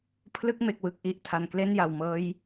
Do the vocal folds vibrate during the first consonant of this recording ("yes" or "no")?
no